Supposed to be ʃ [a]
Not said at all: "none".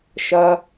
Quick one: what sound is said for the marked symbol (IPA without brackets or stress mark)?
ɐ